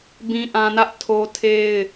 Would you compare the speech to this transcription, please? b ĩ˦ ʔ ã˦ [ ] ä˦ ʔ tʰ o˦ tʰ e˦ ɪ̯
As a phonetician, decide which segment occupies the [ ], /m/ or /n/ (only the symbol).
n